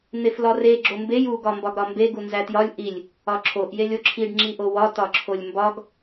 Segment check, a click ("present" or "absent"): present